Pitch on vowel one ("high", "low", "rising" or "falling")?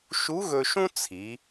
rising